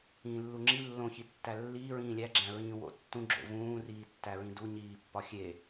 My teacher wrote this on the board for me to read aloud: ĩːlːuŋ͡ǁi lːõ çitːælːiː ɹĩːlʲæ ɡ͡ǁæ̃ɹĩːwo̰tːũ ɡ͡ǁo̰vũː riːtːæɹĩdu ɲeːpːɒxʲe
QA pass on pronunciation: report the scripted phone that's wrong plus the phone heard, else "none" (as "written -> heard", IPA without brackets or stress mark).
eː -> iː